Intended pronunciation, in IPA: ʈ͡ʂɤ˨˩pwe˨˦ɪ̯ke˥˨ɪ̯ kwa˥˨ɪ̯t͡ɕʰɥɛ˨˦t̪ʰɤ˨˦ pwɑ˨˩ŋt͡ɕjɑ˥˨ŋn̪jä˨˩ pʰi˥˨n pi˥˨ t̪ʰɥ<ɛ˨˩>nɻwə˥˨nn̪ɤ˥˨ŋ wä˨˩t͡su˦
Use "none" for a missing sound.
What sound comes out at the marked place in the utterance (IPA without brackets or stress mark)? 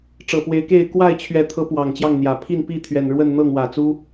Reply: ɛ˨˩